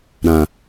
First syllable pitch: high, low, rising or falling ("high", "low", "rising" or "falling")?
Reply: low